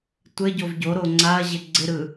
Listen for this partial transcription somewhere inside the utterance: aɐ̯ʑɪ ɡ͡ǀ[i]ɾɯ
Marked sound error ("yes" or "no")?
yes